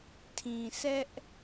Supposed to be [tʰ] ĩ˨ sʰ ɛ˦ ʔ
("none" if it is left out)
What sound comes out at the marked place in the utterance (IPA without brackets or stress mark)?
tʰ